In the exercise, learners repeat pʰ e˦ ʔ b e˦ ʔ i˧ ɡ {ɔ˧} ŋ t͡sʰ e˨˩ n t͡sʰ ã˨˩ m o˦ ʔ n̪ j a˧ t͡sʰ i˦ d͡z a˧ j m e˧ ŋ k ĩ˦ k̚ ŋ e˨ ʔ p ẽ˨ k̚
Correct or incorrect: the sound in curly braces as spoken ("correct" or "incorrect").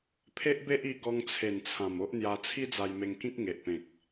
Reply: correct